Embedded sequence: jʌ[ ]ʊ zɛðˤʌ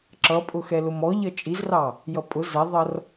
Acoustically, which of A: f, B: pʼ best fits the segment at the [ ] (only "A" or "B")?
B